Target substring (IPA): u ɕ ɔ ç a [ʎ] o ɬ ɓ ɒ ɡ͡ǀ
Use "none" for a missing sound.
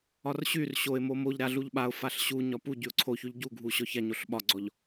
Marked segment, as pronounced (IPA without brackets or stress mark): ɲ